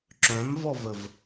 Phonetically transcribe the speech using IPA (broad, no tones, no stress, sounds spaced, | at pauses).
ǁ œ̃ m v ɔ v ə v